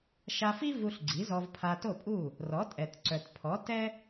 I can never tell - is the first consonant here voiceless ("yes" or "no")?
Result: yes